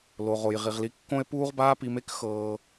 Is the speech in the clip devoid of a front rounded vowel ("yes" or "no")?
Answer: yes